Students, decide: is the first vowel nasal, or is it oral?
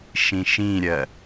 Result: nasal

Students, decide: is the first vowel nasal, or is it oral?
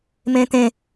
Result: nasal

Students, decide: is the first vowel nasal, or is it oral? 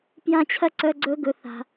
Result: nasal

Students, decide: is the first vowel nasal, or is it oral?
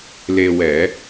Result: oral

